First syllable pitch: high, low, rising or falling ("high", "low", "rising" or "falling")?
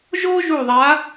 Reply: high